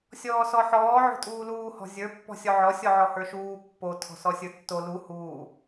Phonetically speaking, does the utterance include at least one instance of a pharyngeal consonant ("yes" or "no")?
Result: yes